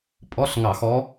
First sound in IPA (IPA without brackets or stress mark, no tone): pʼ